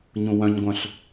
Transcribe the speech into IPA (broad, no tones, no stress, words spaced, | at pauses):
ɲũwœ̃ɲɡʷœ̃ɬ